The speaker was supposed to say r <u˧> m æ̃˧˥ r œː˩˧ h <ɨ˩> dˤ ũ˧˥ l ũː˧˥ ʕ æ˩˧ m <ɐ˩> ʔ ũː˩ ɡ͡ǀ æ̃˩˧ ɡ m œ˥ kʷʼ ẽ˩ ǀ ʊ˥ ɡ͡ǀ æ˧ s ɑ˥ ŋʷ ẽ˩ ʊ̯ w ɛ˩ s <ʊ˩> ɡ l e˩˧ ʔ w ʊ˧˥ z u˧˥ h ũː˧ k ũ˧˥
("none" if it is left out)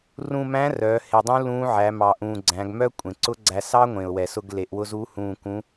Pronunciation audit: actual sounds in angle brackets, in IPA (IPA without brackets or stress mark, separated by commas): ũ˧, e˩, ɑ˩, ʊ˧